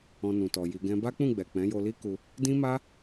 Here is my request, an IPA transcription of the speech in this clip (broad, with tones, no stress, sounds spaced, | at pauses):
ɔ̃˧ n ũ˨ t ɔ˨ j i˧ ɡ ɛ̃˦ b a˦ k͡p ũ˦˨ ɡ͡b ɛ˨ k͡p ɛ̃˨˦ j o˧ l i˦ k u˧ | d ĩ˦ m a˦